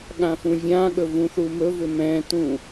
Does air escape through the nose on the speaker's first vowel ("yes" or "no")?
yes